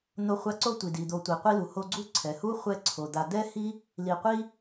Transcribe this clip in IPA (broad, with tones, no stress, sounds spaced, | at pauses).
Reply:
n̪ o˦ χʷ a˦ ǀ o˥ tʷ i˩ d i˩ d̪ o˨ tʷ i˩ qʷ i˦ l u˩ h o˦ ɡ͡ǀ u˦ ǀʰ ɛ˩ h u˥ χʷ ɛ˦ ǀʰ o˩ d̪ a˨ d̪ ɛ˥ h i˥ | l i˨ qʷ i˥